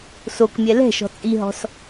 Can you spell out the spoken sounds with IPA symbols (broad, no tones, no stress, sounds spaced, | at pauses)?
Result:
s o k mʲ ɛ l ɛ̤ ʃ ɔ̤ t͡sʼ i ɦ ɔ̤ s